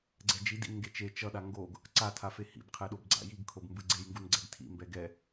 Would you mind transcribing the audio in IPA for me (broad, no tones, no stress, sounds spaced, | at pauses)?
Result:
ɡ͡ǀ ɛ d͡ʒ i d ḭ n ŋ ɡ e t͡ʃ e t͡ʃ ʌ ɗ a ŋ ɡ o ɡ | ǀ a tʰ a f e h ḭ b qʰ ɛ ɗ o b ɡ͡ǀ a̰ j i ɡ kʰ o b m b ɯ ɡ͡ǀ e j ŋ ɡ u n ɡ͡ǀ ɛ ɡ tʰ ḭ m b ɛ ɡ ɛ